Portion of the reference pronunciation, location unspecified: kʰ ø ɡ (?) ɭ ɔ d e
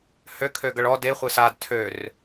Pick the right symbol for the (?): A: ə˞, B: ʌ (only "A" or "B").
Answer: B